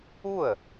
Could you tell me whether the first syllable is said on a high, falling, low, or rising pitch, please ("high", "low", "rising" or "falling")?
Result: falling